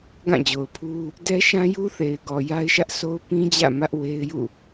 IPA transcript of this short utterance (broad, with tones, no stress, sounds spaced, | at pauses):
ɡ ã˦˨ d͡ʑ o˨ ʊ̯ pʰ u˦ | d ɛ˦ ʃ ã˦ j u˦ θ e˨ ɪ̯ ɡ ɔ˨ j a˦ ɪ̯ ʃ ä˦ ʔ s o˦ ʊ̯ p ĩ˦ d͡ʑ ä̰˦˨ m ä˦ ʔ w e˦ ɪ̯ j ṵ˦˨